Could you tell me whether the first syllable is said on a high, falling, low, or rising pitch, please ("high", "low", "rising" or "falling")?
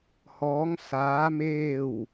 rising